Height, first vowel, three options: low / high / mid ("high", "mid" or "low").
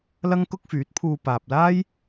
low